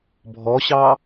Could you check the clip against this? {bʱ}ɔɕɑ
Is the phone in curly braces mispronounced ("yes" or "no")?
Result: no